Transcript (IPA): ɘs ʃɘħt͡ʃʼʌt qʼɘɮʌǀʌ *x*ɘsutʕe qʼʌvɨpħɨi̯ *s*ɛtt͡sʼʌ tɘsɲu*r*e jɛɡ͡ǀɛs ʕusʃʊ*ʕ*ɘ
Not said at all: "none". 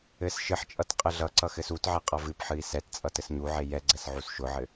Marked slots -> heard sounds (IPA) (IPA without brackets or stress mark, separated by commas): x, s, ʕ, ʕ